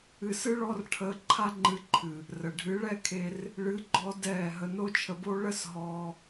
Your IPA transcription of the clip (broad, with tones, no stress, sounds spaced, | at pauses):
ɨ˧ s ɨ˦ ɭ ɔ˦ r ʈʰ əː˧ ǃʰ a˦ ŋ͡ǃ ɨ˧ ǃʰ ɨ˨ | r ə˨ ɖʱ ɨ˨˦ ɭ ɛ˦ kʰ e˧ r | ɭ ɨ˨˦ ɡ͡ǃ ɔ˧ d ɛː˦˨ ɦ ə˧ n o˦ t͡ʃʰ ə˧ b o˦ ɭ ə˦ s ɦ ɔː˧